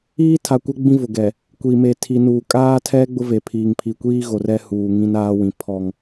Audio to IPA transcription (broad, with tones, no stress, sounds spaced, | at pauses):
iː˦ tʰ a˨ kʷ ɛ˦ ɡ͡b ĩ˦ v ʊ˨ ɡ ɛ˨ | kʷ i˨ m e˨ tʰ i˨ n uː˨ kʼ aː˦ tʰ ɛ˦ ɡ͡b ʊ˦ v e˨ pʰ iː˨ ŋ pʰ i˨ kʷ iː˦ ɣ o˨ r ɛ˦ h uː˨ ŋ ĩ˦ n aː˦ w ĩ˨ pʰ ɔ˦ ŋ